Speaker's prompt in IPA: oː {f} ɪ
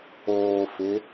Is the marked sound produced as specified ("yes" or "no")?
yes